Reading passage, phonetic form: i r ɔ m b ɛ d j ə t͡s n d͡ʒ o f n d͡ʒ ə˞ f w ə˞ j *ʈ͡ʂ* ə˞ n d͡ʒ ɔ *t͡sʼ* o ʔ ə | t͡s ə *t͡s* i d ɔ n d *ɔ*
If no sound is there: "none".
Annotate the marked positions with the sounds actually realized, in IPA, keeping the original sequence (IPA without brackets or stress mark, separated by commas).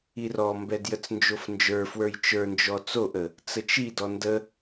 t͡ʃ, t͡s, t͡ʃ, ə